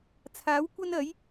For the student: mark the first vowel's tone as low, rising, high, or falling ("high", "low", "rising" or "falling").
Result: rising